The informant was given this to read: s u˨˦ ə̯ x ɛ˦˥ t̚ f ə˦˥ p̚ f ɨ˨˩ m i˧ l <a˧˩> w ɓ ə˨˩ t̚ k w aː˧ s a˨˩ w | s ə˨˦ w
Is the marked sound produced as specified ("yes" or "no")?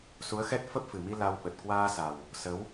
no